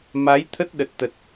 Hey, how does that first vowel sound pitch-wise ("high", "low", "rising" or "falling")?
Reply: rising